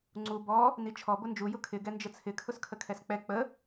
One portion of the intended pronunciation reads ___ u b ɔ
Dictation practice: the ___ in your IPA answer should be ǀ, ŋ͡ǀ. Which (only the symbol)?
ŋ͡ǀ